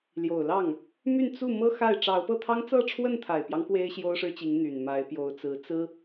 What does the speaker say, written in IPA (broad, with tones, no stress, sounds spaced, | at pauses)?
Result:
l j o˨˩ ʊ̯ l ɑ˥˩ ŋ | m y˥˧ n t͡s u˥˩ m ɤ˥ x a˥˩ ɪ̯ ʈ͡ʂ ɑ˧˥ ʊ̯ p ɤ˥˩ t̪ʰ ɑ˥ ŋ t͡s ɤ˥˧ ʈ͡ʂʰ w ə˥˩ n t̪ʰ a˨˩ ɪ̯ p j ɑ˦ ŋ k w e˥ ɪ̯ ɕ j o˥ ʊ̯ ʂ ɻ̩˥ t͡ɕ i˧˥ ŋ n̪ y˨˩ n m a˧˥ ɪ̯ p j o˧˥ ʊ̯ t͡s ɹ̩˧˥ t͡s ɹ̩˥